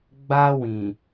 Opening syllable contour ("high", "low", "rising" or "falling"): high